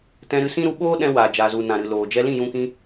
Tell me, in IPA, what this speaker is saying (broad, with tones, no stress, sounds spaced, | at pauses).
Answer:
t ɛ̃˧ ɾ ɨ˧ s ĩ˦ ɾ u˧ ɓ oː˦ ɗ ɛ̃˧ w aː˨ d͡ʒ aː˨ z u˨ n ã˨ ɾ ɨ˨ l oː˨ d͡ʒ ɛ˧ l ĩ˦˨ j ũ˧ k ĩ˧